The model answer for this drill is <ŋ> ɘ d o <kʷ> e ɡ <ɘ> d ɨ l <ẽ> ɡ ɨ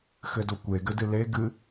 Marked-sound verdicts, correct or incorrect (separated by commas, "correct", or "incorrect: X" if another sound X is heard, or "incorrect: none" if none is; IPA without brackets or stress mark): incorrect: x, correct, correct, incorrect: e